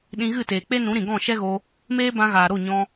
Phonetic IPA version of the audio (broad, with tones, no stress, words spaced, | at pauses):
ɗĩ˧ɣɨ˦˨teː˨k͡pe˦ nũ˨˦ɾĩ˨ɡɔ̃˦˨ ʃɛ˦ɣo˧ | meː˦bã˧ɣaː˨ ɾo˦˨ɲɔ̃˧